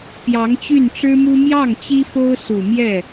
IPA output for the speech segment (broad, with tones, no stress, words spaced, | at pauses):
pjɑ˧˥ŋt͡ɕy˥˩nʈ͡ʂɻ̩˥mu˥ mjɑ˥˩ŋ t͡ɕi˥fo˥ʊ̯su˨˩mjɛ˥˩